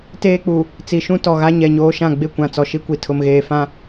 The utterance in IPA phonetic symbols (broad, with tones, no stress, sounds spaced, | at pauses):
t eː˦ k͡p u˨ | t͡s i˨ ʃ ũ˦ t ɔ˨ ɣ a˦ ɲ ɛ˨ ɲ oː˦ ʃ ã˦˨ ɡ͡b ɪ˦˨ kʷ ã˨ t͡s ɔ˨ ʃ i˦ kʷ i˨ tʰ ʊ˨ m ɣ eː˨ f ã˦